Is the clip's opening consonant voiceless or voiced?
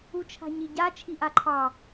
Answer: voiceless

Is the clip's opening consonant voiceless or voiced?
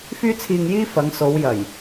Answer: voiceless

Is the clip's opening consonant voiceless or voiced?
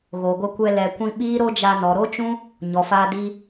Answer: voiced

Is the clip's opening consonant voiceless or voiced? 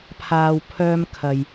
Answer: voiceless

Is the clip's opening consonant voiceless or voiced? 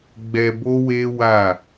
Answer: voiced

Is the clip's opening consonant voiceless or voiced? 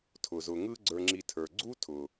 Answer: voiceless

